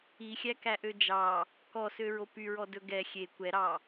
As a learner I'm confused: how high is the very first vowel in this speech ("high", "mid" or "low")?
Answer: high